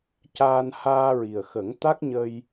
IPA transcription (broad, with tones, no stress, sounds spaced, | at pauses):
c aː˧ n h aː˧ ɹ i˨˩ ə̯ x ə˨˩˦ ŋ t̪ a˦˥ k̚ ɲ ə˧ j